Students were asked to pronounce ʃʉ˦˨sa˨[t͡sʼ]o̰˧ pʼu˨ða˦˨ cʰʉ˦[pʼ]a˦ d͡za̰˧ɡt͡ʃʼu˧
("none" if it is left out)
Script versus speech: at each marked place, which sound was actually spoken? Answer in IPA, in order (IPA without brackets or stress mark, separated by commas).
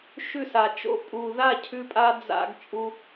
t͡ʃ, pʼ